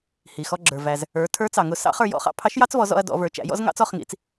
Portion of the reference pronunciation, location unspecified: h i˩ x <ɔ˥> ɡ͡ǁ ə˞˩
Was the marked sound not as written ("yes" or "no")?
yes